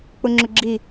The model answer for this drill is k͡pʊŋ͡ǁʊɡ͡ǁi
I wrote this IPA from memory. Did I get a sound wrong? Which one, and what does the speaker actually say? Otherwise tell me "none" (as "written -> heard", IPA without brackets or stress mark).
none